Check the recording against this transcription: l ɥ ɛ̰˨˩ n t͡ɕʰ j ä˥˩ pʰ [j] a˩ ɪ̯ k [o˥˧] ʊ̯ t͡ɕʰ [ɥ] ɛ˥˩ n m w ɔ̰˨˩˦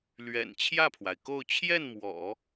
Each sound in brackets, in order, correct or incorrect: incorrect: w, correct, incorrect: j

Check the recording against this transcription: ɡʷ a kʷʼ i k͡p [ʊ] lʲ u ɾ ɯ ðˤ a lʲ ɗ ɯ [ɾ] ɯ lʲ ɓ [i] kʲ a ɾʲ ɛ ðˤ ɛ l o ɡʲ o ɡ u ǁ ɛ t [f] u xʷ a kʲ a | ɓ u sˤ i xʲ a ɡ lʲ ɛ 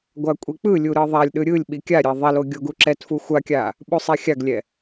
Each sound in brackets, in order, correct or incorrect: incorrect: ɯ, incorrect: ɾʲ, correct, correct

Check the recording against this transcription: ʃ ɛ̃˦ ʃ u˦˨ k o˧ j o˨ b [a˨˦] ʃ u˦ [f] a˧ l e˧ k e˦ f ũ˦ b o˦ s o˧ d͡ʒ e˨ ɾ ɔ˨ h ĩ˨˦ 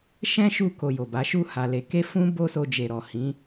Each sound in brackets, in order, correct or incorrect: correct, incorrect: h

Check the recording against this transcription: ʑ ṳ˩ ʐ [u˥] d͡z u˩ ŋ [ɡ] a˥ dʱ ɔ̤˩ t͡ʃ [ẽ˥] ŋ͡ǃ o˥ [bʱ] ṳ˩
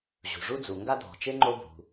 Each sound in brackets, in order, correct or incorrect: correct, correct, incorrect: e˥, correct

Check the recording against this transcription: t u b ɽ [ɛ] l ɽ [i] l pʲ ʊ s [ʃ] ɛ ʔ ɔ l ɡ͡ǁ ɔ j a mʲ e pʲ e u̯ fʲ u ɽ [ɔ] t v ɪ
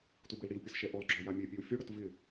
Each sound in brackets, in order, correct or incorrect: incorrect: ɪ, correct, correct, incorrect: ʊ

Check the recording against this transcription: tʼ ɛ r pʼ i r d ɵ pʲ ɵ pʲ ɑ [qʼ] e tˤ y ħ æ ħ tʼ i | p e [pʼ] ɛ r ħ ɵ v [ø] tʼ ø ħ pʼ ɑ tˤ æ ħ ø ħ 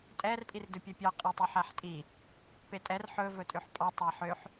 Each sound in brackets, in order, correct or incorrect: correct, incorrect: tʼ, incorrect: ɵ

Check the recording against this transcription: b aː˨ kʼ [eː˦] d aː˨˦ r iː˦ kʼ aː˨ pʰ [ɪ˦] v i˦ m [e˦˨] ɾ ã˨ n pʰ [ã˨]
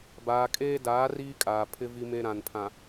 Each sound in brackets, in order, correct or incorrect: correct, correct, incorrect: e˦, correct

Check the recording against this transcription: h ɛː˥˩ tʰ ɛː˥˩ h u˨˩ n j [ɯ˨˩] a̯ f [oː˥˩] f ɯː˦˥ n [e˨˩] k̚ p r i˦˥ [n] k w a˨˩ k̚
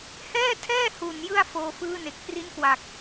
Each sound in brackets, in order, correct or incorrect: incorrect: ɯ˥˩, incorrect: oː˧, correct, correct

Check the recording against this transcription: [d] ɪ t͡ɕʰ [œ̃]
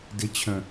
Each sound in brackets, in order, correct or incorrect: correct, correct

